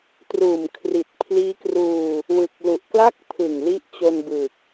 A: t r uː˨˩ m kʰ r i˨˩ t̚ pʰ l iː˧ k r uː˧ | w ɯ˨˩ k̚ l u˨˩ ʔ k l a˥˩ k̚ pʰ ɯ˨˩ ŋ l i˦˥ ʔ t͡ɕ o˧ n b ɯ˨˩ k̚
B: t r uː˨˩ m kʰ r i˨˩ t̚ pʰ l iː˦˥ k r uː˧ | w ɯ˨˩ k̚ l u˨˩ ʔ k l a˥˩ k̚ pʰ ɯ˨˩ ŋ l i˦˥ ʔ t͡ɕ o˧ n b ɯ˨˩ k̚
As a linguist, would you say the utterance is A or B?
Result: B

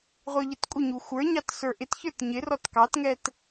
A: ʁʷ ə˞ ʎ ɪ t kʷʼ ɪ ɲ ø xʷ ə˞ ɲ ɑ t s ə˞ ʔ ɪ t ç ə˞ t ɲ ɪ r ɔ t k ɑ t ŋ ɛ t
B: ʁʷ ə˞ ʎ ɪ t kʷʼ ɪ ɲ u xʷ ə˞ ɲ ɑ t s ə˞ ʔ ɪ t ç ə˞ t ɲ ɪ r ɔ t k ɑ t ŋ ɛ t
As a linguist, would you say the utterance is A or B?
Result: B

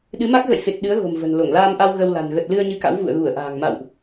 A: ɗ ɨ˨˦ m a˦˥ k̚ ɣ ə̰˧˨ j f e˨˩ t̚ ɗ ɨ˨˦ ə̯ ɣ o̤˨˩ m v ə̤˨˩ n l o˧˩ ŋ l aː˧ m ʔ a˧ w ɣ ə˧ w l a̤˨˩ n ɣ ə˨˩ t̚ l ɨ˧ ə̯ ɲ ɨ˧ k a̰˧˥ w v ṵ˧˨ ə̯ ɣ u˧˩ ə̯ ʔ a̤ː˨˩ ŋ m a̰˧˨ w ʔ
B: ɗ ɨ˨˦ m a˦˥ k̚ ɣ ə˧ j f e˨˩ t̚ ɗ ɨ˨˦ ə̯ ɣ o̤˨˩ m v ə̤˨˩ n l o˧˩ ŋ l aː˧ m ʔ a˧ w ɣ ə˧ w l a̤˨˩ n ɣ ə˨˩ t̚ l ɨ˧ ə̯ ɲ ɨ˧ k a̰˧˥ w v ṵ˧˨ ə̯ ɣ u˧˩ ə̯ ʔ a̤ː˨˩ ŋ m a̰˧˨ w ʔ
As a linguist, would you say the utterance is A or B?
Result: A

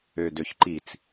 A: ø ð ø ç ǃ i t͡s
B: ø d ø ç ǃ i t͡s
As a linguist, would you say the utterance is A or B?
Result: B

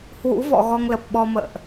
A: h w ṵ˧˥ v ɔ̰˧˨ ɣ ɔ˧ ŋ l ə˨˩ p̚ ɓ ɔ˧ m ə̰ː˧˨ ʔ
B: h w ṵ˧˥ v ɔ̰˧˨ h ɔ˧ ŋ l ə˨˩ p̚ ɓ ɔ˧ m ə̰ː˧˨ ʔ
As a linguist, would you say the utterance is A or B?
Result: A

